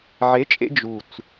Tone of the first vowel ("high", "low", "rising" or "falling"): rising